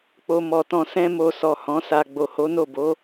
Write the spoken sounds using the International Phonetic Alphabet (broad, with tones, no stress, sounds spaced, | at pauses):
k͡p o˨ m ɔ˨ t ɔ̃˨ s ɛ̃˧ m o˨ s ɔ˨ h ɔ̃˨˦ s a˧ ɡ͡b o˨ h o˨˦ n o˦˨ b o˨˦